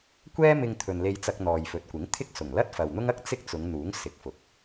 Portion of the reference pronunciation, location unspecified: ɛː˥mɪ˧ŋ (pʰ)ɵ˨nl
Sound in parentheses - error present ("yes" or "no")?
yes